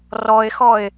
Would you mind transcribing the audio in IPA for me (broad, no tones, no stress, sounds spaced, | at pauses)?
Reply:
r ɔ ɪ̯ x ɔ ɪ̯